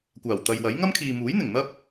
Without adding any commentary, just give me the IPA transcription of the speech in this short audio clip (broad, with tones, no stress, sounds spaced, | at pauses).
kʷ aː˨˩ w t̪ ɐ˨ j w ɐ˨˥ j ŋ ɐ˥ m kʰ iː˨ m uː˨˥ j n̪ ɪ˨˩ ŋ n̪ ɐ˥ p̚